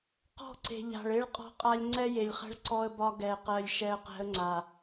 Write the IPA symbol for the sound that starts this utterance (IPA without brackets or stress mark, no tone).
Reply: q